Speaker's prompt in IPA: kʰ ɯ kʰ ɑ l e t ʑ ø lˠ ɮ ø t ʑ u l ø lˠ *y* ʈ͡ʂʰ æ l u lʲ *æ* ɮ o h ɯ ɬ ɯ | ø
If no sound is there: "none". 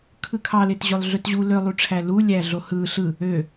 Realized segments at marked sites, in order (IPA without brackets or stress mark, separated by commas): y, æ